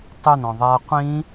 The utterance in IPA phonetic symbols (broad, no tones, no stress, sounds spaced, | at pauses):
tˤ ø n ɔ̃ ðˤ a qʷ ĩ